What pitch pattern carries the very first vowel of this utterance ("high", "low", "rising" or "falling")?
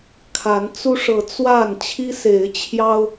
rising